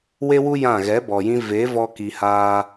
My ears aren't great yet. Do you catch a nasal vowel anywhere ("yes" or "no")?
yes